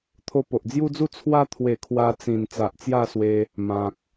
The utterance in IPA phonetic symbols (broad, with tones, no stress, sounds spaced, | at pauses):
t̪ʰ o˧ p o˨ ʔ d͡z j u˦ d͡z u˥˧ t͡sʰ w a˧ t̪ʰ w e˨˩ kʰ w a˧ t͡s ĩ˨˩ n t͡s a˨ ʔ t͡s j a˥˧ s w e˧ | m ã˨ k̚